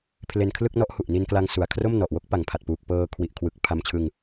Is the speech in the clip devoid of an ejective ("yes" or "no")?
yes